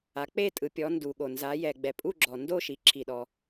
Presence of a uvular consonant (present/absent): absent